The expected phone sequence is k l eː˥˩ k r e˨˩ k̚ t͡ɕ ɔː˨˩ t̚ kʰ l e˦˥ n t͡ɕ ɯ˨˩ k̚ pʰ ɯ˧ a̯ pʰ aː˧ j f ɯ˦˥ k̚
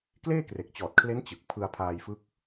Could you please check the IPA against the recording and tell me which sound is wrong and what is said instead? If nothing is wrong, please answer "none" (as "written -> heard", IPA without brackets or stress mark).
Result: none